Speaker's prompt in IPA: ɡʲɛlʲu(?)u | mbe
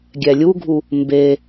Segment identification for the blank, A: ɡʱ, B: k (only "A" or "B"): A